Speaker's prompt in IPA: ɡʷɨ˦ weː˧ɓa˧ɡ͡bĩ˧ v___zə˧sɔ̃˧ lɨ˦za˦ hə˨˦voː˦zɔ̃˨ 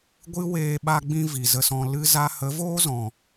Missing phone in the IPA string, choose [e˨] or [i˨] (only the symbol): i˨